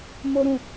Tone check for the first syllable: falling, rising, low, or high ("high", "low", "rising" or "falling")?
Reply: high